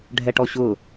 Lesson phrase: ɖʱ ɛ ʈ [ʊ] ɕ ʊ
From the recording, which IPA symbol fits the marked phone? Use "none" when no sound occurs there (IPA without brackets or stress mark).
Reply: ɔ